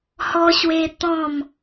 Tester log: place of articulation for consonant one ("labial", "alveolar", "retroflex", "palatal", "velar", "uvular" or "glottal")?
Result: glottal